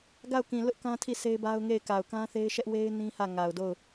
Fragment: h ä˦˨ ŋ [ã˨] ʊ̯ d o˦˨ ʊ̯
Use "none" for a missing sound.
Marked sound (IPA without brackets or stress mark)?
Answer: a˨